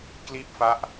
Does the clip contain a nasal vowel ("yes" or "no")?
no